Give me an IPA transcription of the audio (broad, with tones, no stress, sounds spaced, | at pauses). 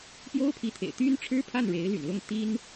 p j o˥ ʊ̯ pʰ i˧˥ t̪ʰ ḛ˨˩ ɪ̯ t̪ y˥ n ʈ͡ʂʰ ɻ̩˥ pʰ a˥˩ n ɻ e˧˥ ɪ̯ l y̰˨˩ n l ʊ˥˩ ŋ t̪ i˥ n